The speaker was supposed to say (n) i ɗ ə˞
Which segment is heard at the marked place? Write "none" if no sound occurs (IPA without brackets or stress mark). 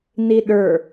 n